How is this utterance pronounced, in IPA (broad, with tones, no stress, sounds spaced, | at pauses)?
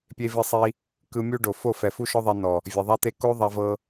pʲ e˧ v i˧ sˤ i˧ | k ɯ˧ mʲ u˦ ɖ o˨ f o˦˨ f ɛ˨ f u˦ ʃ ɔ˦ ðˤ ɛ˧ n ɔ˨ | vʲ ɛ˨ ðˤ a˦ t̪ e˦ k o˦ ðˤ a˦ v ɤ˦